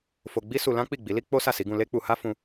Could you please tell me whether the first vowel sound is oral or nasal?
oral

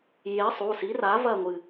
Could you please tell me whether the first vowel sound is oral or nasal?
oral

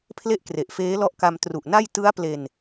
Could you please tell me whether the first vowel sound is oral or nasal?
oral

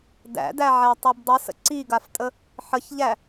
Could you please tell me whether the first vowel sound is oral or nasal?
oral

